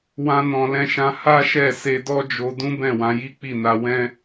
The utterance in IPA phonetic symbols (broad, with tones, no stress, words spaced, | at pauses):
wã˧ nɔ̃˨lɛ̃˧ʃã˧ ha˦ʃɛ˦˨ se˧dɔ˦ d͡ʒo˧ dũ˦bɛ̃˦˨wã˧ ji˦k͡pi˦˨na˧ wɛ̃˦